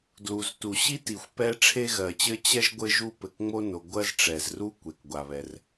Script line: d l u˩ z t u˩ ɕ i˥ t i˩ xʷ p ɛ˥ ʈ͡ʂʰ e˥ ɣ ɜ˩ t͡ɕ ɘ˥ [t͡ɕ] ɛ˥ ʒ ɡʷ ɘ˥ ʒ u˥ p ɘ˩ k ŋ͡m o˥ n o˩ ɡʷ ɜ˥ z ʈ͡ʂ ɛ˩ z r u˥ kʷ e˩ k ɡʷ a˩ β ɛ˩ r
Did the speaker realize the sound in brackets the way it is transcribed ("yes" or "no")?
yes